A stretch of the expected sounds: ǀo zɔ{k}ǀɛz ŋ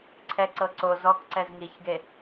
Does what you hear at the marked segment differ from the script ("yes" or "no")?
no